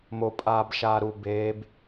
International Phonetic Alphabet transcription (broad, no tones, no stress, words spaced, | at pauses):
mo pʼaːbʃaːɾu beːb